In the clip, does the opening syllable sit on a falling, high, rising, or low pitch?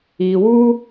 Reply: low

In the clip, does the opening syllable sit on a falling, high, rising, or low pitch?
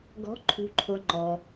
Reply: rising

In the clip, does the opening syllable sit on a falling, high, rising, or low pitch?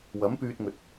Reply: rising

